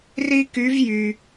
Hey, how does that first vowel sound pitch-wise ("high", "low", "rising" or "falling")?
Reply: high